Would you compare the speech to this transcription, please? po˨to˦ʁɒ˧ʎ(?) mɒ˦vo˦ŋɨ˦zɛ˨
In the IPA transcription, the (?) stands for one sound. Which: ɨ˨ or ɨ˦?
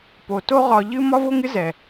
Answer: ɨ˦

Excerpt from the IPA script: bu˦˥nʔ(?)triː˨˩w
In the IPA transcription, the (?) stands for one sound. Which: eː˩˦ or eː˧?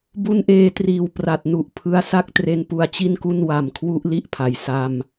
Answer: eː˧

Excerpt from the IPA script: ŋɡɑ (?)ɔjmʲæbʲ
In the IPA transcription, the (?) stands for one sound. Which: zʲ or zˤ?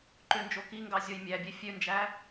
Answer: zʲ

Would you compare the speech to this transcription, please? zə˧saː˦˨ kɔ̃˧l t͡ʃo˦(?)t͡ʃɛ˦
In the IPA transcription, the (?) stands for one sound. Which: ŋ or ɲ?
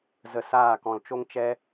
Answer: ŋ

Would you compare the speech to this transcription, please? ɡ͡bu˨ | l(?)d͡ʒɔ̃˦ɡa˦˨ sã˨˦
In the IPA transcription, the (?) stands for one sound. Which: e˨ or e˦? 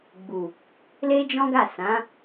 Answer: e˦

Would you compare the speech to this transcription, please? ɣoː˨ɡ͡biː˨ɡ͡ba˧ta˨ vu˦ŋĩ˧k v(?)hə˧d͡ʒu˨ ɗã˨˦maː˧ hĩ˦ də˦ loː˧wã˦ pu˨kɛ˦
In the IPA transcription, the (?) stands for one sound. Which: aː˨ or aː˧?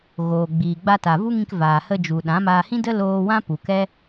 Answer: aː˨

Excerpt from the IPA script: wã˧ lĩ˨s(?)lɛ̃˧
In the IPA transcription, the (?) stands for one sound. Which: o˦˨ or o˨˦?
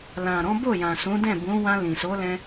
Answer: o˨˦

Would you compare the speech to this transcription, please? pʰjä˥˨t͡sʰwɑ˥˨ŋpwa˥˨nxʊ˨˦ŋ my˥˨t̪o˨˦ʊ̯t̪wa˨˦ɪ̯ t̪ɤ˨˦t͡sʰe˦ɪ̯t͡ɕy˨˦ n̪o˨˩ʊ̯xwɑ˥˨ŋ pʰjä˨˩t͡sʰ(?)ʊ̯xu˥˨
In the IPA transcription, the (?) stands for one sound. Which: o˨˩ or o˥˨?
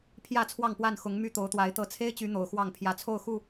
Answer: o˥˨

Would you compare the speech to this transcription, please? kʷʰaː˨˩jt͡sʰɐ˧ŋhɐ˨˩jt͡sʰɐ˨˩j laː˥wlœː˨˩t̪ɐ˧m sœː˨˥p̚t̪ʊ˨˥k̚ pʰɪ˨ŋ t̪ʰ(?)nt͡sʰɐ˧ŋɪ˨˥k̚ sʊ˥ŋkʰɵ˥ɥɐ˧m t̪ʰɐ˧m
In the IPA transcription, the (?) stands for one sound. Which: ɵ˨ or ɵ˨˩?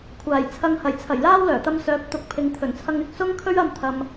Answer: ɵ˨˩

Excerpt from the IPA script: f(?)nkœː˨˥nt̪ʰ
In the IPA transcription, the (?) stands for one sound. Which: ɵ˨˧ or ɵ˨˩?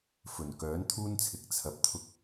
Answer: ɵ˨˩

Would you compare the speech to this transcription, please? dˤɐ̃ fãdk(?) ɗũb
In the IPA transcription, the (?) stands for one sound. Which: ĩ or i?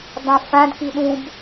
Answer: i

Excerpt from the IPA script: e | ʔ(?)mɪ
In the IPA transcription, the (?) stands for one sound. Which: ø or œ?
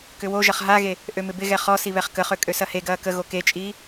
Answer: ø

